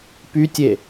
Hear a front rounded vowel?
yes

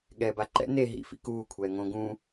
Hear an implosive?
yes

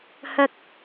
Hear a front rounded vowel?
no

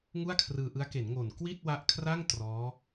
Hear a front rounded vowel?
no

